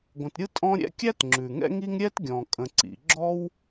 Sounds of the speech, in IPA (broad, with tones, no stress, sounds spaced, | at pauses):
ɡʷ ə̃˨ t ɾʲ ɯ˥ tʼ ɔ̃˦ ɾʲ ɛ̰˥ kʲ æ˥ t ŋ͡ǁ ʉ˩ ŋ ɛ̰˥ ŋ i˥ ŋ ɾʲ ɛ˥ t ɡʲ ɔ̃˩ kʼ ə̃˨ ǀ ḭ˨ ɡ͡ǁ ɔ˥ w